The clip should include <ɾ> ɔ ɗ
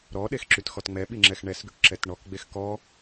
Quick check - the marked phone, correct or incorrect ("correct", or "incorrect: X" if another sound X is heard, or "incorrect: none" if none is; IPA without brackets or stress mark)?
correct